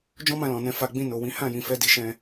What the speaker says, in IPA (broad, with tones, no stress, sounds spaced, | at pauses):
d͡ʒ ɔ̃˦ m ã˧ l ɔ̃˨ n ɛ̃˧ f a˧ ɡ͡b ĩ˧ n o˨ w ĩ˨˦ h ã˦˨ j ĩ˨ f ɛ˧ d i˨ ʃ ɛ̃˧